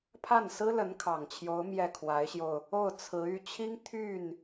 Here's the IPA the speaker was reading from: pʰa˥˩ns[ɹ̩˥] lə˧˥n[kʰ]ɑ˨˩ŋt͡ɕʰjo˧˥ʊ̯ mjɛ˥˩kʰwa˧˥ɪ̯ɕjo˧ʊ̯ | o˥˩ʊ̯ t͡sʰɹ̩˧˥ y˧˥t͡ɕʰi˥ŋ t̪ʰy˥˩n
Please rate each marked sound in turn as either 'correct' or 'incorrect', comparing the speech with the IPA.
correct, correct

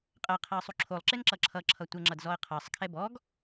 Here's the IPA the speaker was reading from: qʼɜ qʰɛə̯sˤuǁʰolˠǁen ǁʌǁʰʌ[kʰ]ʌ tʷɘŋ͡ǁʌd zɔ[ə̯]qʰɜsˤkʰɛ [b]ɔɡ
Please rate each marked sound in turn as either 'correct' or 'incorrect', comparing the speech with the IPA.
incorrect, correct, correct

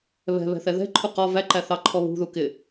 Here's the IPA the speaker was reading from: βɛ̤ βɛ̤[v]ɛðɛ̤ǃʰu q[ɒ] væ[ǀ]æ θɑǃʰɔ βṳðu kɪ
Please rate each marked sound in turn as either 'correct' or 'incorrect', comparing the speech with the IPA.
incorrect, correct, incorrect

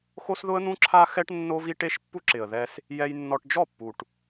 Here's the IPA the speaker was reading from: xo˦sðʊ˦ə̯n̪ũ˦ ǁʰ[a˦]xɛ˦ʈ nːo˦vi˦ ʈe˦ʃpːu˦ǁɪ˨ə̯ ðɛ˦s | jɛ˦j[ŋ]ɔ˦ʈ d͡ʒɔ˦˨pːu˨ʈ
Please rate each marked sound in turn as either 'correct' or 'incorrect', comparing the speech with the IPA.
correct, incorrect

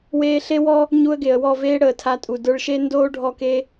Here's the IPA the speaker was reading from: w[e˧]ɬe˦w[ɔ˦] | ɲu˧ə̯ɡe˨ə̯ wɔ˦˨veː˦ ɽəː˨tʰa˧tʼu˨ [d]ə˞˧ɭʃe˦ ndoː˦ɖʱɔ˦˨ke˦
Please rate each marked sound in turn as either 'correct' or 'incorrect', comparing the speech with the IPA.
incorrect, correct, correct

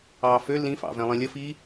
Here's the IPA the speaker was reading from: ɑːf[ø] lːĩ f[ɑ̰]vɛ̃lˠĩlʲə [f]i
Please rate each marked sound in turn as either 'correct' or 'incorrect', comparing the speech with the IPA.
correct, correct, correct

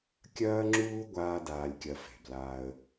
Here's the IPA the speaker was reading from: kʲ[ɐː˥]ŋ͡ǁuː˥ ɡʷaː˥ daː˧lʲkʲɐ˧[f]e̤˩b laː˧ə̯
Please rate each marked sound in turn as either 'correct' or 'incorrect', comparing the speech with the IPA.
correct, correct

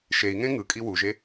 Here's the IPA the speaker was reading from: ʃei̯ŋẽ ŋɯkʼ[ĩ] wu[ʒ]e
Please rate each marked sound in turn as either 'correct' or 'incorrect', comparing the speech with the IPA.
incorrect, correct

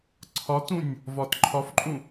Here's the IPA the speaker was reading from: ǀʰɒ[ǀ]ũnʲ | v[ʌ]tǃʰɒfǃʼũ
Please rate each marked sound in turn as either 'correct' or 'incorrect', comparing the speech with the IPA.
incorrect, incorrect

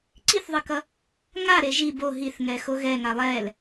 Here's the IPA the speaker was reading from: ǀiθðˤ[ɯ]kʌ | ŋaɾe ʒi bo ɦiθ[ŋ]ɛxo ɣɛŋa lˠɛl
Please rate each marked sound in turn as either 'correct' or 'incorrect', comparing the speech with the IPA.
correct, correct

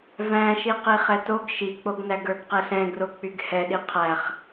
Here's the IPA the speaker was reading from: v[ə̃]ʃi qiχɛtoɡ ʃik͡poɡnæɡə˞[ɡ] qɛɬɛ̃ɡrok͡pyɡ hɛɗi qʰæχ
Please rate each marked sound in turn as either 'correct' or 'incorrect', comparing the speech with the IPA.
incorrect, correct

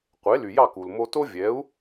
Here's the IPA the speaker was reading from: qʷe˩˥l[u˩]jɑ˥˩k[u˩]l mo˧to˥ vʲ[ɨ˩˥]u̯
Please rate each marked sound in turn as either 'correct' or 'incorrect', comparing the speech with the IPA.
incorrect, correct, incorrect

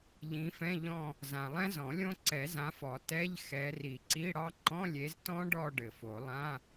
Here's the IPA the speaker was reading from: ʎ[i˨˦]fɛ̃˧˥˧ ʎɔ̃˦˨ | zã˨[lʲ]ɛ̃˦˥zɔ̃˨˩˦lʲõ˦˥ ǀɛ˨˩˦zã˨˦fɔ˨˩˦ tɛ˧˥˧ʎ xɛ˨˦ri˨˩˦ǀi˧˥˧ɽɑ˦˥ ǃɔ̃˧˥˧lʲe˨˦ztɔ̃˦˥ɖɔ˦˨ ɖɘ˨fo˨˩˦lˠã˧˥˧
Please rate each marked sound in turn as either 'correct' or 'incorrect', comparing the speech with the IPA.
incorrect, incorrect

